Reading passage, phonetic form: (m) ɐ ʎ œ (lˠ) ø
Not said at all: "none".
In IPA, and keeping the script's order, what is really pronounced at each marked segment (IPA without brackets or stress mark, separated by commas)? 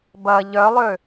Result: b, lˠ